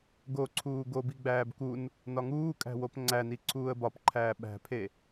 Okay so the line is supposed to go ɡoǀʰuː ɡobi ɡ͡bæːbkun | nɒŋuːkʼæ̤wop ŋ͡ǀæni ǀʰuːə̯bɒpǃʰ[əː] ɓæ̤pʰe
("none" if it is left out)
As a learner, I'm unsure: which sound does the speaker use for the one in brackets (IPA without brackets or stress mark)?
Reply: æː